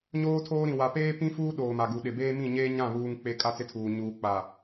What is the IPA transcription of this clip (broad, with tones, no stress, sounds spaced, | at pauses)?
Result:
ɲ oː˦ tʰ oː˦ ɾ ĩ˨ w a˨ p eː˦ p ĩ˦ f uː˦ ɗ oː˨ m a˨ ɡ u˨ ɗ ɪ˨ b eː˦ m ĩ˦˨ ɲ eː˦ ɲ ã˦˨ β uː˦ ŋ k͡p e˦ kʼ a˦ t͡s ɪ˦ tʰ uː˨ ɲ uː˨ k͡p a˨